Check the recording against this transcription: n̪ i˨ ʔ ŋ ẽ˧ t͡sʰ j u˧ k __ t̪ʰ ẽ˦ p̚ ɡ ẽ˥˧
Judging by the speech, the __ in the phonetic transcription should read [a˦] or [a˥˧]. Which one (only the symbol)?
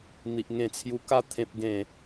a˦